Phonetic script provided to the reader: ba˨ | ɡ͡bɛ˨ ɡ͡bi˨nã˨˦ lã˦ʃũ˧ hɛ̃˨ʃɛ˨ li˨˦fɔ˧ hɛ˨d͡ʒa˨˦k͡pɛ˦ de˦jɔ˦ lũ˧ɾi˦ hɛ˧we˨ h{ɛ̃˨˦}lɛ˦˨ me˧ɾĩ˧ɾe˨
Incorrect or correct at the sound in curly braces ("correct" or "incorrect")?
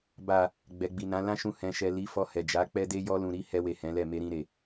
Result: correct